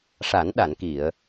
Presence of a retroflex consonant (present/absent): present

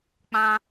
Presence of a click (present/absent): absent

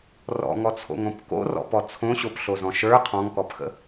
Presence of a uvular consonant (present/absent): present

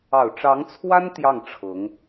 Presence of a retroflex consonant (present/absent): present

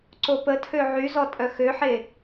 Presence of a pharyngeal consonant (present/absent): present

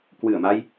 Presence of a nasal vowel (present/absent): absent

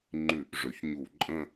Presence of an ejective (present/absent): present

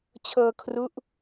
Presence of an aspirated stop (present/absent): present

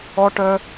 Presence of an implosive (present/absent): absent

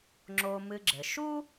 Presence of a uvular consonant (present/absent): absent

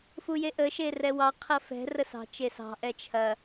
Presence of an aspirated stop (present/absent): present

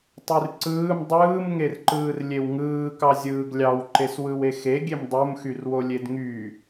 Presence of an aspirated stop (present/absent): absent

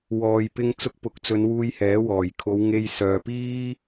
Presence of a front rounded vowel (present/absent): present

